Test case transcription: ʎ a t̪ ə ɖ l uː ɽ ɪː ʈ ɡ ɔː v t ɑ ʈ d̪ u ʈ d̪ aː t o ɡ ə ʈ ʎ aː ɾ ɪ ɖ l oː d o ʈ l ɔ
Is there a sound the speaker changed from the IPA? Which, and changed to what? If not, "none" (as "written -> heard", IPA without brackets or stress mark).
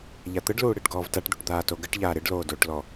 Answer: ɑ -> a